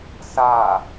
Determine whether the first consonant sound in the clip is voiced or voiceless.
voiceless